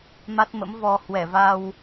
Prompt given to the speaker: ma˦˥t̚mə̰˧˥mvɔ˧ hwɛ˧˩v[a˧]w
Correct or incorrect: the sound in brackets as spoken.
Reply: correct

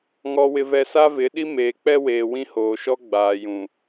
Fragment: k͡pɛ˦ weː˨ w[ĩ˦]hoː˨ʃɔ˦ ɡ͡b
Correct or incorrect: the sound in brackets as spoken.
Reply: correct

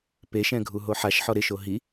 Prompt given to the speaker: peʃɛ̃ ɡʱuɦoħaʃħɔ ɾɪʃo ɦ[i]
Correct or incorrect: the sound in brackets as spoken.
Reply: correct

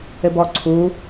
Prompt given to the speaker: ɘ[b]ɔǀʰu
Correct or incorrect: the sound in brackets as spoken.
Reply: correct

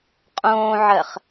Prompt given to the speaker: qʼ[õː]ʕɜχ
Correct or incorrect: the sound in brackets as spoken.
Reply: correct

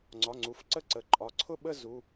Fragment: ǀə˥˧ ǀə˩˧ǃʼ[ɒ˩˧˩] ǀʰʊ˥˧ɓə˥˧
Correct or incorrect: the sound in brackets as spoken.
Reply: correct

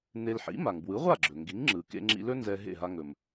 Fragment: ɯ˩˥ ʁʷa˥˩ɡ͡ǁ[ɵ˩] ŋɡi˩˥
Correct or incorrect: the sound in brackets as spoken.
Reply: correct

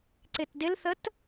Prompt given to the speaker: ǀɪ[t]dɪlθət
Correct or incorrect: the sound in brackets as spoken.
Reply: correct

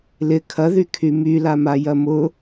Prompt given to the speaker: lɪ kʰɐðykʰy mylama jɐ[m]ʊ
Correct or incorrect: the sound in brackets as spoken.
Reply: correct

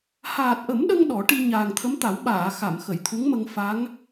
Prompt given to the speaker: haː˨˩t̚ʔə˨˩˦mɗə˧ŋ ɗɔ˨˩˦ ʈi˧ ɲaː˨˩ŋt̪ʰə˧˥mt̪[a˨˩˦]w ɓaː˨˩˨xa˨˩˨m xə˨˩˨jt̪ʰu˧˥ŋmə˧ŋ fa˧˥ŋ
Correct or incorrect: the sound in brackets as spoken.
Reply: correct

